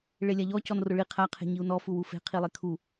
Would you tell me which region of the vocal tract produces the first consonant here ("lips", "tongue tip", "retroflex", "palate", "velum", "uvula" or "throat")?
retroflex